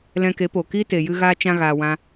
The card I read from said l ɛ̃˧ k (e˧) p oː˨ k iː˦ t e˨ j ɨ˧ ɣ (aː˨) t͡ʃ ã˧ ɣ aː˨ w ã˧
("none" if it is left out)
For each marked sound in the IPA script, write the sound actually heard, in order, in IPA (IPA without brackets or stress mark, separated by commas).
e˨˦, aː˧